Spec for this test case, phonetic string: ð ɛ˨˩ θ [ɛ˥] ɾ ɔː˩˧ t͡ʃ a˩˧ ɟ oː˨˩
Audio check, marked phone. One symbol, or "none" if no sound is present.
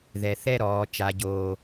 ɛ˥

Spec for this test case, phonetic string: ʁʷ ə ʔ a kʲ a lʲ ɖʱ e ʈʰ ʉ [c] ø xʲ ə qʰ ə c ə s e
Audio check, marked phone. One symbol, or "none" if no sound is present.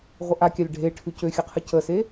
c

